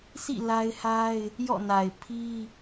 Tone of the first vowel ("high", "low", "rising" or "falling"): falling